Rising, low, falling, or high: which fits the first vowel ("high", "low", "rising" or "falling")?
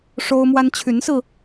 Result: high